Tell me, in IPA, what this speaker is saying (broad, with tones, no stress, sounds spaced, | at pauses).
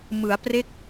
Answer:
m ɯ˩˦ a̯ p r e˦˥ k̚